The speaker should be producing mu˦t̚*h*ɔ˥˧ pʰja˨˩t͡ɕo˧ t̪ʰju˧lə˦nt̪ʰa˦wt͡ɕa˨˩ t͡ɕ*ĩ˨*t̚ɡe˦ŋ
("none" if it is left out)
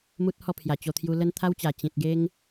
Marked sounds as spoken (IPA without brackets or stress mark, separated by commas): h, ĩ˨